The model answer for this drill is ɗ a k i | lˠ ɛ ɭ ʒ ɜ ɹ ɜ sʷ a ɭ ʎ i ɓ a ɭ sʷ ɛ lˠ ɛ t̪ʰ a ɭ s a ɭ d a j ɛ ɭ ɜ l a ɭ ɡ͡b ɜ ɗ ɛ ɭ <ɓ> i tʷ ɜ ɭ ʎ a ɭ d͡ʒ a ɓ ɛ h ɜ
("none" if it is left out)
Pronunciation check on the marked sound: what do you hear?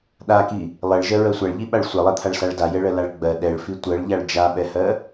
f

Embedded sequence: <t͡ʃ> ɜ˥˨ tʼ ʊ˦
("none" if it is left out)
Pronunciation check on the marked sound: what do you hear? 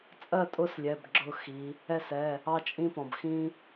t͡sʼ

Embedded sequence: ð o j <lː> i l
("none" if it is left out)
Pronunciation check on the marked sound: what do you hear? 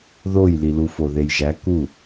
l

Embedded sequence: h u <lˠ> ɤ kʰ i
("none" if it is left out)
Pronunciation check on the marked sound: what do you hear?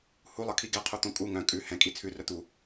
lˠ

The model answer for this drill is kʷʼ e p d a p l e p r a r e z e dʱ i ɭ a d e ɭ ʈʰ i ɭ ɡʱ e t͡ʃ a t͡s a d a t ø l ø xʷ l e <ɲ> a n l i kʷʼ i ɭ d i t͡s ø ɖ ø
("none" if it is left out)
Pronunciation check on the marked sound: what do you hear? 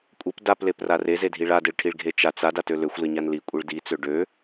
ɲ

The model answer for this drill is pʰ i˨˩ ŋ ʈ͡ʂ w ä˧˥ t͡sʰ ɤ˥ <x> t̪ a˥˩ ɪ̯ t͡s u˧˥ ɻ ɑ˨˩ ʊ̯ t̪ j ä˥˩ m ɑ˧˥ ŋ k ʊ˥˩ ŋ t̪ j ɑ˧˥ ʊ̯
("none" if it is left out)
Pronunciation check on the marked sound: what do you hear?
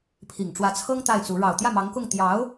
ŋ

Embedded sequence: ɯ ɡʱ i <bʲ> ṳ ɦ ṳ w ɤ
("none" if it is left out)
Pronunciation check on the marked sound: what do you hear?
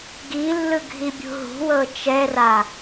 bʲ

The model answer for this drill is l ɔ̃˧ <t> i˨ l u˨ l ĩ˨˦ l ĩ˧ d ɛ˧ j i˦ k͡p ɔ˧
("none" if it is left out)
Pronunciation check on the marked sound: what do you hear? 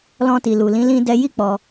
t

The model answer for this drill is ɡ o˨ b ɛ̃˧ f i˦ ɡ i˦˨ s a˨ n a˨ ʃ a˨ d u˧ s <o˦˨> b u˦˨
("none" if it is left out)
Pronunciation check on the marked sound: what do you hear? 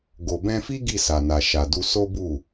o˦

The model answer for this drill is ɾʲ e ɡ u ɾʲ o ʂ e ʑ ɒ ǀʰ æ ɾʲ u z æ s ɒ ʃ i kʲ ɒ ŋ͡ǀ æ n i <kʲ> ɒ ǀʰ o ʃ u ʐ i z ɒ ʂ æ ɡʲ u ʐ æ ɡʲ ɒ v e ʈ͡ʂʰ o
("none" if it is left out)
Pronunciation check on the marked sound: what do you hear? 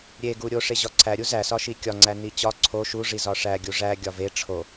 t͡ɕ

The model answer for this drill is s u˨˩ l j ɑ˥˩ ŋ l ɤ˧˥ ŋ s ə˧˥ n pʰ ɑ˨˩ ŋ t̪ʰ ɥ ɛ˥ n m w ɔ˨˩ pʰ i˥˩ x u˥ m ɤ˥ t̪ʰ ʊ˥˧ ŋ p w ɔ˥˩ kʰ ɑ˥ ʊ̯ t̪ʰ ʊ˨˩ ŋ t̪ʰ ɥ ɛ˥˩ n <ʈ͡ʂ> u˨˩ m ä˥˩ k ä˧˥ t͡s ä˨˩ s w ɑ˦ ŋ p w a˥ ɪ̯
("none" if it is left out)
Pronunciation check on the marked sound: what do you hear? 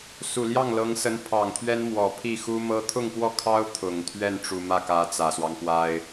ʈ͡ʂ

